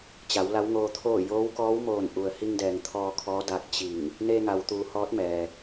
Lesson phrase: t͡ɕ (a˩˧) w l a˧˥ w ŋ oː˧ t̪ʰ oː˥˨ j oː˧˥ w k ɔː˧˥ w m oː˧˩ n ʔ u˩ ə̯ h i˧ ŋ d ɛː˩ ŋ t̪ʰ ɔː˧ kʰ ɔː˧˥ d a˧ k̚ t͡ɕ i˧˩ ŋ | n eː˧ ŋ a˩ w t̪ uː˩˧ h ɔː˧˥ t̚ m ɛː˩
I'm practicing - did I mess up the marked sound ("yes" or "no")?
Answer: no